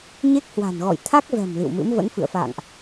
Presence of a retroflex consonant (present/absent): absent